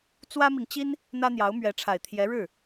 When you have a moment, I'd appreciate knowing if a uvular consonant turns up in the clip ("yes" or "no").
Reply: no